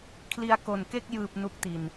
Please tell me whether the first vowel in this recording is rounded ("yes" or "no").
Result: no